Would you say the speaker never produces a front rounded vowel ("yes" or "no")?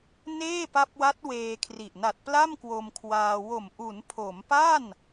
yes